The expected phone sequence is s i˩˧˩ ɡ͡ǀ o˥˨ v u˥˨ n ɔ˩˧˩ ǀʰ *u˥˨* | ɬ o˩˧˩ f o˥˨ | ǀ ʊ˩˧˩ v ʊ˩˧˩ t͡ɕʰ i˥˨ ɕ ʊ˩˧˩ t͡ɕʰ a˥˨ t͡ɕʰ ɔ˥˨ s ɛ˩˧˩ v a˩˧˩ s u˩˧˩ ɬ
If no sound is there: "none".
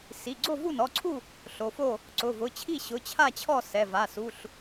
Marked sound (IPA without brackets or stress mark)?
u˥˨